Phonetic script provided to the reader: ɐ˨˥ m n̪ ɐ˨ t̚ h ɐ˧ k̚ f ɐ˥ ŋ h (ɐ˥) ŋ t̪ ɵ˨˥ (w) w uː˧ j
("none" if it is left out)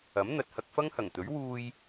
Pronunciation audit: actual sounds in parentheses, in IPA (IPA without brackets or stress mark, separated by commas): ɐ˨˩, ɥ